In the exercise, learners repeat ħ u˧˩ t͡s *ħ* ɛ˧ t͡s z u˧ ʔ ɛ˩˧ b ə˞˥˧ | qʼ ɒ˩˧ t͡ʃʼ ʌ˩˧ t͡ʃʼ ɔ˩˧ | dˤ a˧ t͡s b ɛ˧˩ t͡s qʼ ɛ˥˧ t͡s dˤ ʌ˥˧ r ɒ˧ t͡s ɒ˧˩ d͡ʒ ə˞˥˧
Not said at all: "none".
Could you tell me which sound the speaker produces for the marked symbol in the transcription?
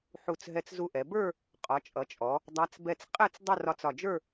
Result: ɦ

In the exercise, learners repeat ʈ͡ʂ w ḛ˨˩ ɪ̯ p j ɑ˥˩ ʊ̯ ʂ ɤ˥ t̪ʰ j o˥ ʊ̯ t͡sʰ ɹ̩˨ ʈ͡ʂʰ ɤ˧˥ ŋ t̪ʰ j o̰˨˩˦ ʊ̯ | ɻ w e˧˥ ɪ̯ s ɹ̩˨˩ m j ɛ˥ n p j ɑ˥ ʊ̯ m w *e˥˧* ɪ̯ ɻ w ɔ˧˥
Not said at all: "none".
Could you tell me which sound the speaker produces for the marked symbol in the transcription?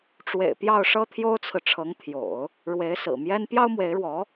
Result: e˧˥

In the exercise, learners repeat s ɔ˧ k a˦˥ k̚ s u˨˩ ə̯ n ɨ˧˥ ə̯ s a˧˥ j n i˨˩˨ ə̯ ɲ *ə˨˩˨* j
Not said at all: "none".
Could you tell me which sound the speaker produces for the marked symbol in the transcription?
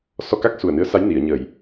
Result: ə˨˩˨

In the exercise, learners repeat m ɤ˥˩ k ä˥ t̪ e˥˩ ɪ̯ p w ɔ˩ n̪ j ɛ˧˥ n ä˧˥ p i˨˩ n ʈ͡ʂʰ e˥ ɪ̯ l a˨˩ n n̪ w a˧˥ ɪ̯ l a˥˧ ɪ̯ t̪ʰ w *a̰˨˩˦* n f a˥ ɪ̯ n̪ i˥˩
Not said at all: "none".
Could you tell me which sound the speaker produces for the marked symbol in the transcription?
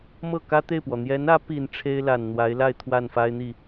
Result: a˥˩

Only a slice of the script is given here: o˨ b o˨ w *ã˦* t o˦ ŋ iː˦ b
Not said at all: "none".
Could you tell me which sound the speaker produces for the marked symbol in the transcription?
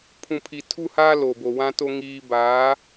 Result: ã˦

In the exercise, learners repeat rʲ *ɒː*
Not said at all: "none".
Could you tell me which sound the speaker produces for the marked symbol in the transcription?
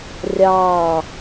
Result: ɑː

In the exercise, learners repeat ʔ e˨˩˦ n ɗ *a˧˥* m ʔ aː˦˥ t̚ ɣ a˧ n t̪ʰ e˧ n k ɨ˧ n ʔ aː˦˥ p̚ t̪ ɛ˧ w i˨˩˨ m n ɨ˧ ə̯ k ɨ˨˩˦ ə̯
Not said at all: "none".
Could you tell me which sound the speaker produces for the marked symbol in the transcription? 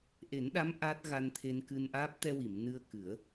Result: a˧˥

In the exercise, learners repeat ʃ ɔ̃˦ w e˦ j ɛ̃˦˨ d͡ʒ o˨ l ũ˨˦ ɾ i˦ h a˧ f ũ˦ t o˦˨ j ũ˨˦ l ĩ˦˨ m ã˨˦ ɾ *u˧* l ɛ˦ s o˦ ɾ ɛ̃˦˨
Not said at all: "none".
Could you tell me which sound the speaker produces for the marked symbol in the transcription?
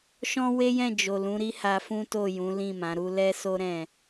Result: u˦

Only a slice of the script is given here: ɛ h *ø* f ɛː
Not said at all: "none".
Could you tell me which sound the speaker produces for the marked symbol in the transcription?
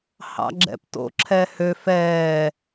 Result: ø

